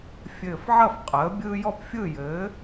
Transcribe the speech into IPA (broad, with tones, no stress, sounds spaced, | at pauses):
fʲ ɘː˧˩ f ʕ ɐ˥˩ f qʼ əː˩˥ bʲ ɯː˦ j ɔ˥˩ p fʲ ɯ˥˩ j ɘː˩˥